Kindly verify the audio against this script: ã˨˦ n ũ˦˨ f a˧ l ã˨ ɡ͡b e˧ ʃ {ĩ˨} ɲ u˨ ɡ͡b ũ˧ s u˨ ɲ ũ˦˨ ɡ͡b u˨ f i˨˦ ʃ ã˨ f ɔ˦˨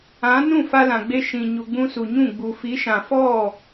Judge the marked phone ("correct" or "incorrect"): correct